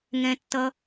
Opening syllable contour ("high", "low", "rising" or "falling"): low